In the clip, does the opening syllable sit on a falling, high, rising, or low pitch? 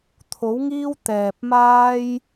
rising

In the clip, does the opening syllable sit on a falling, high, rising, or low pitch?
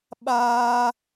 high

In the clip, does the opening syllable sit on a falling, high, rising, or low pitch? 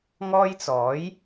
high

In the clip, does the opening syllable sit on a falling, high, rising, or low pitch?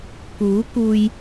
rising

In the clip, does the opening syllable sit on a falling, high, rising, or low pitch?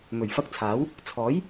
low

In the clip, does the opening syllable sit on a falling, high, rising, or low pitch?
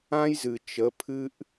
high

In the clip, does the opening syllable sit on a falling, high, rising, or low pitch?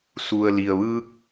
low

